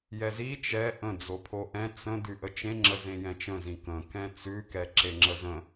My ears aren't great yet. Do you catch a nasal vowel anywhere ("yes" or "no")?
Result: yes